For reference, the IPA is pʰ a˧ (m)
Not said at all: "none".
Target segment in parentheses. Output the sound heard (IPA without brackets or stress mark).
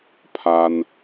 n